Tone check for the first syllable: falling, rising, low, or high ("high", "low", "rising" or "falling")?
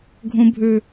high